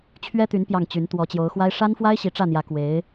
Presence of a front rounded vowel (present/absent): present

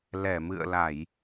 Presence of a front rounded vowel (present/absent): absent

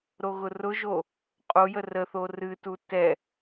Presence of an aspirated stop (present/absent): absent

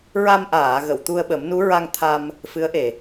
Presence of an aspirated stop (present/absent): present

